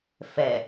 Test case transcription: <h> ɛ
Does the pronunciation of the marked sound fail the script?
yes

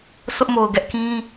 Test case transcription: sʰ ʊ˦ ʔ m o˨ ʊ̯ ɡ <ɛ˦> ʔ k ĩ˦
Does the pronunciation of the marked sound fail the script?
no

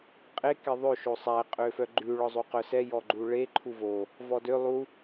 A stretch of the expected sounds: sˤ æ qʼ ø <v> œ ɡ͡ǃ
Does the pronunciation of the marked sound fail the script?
yes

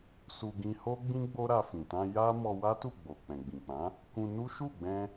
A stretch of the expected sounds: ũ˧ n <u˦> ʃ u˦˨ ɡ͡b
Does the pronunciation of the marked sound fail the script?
no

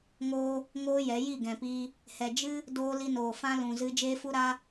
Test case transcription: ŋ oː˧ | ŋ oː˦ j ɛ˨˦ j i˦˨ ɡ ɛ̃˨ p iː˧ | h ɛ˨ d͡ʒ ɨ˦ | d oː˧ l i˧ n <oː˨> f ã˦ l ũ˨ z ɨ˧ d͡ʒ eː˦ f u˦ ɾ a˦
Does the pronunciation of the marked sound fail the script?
no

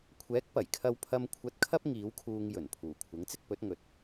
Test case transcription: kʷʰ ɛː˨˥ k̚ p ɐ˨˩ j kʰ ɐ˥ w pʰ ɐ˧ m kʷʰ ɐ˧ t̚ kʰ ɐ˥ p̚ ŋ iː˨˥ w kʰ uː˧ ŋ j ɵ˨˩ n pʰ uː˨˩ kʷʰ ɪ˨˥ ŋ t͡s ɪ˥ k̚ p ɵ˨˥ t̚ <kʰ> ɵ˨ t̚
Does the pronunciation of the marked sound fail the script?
yes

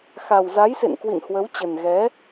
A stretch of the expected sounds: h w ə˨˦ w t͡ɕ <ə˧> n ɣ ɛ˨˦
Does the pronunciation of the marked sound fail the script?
yes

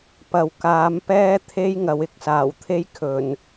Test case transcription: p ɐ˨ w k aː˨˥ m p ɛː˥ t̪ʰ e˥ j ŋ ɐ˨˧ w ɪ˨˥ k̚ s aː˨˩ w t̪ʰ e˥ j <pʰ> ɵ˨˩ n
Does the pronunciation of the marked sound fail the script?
yes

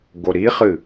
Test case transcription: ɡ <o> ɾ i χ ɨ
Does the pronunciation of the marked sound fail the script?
no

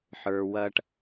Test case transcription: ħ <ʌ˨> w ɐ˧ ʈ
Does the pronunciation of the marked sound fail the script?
yes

